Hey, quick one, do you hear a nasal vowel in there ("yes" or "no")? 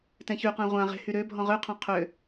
yes